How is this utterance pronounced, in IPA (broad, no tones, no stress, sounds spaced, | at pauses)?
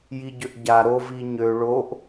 j i ɟ ø ʔ ɟ a ɾ o v i ɲ ø ɭ o ʔ